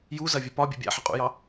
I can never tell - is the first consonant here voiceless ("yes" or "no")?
no